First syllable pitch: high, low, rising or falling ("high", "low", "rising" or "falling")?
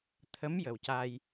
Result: rising